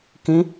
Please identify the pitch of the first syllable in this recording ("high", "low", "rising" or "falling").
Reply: rising